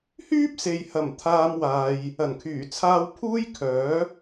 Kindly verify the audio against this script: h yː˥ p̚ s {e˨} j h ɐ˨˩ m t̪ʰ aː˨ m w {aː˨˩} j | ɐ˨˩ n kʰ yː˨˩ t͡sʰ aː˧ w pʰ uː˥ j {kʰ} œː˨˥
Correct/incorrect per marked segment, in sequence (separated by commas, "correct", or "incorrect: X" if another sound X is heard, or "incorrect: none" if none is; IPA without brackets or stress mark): correct, incorrect: aː˨, correct